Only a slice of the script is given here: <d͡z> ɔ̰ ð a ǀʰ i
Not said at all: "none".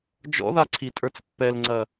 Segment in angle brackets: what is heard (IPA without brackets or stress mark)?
d͡ʒ